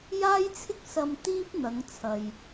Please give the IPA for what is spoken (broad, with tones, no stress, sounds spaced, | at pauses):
j aː˥ j t͡sʰ ɪ˥ k̚ s ɐ˧ m t̪ iː˥ p̚ n̪ ɐ˨˧ ŋ t͡sʰ ɐ˨ j